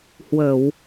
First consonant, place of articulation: glottal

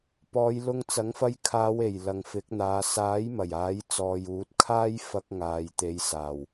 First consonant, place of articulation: labial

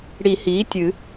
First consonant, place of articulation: retroflex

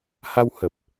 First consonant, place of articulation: glottal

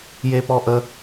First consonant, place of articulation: palatal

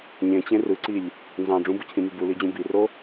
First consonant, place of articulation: palatal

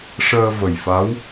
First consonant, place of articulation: retroflex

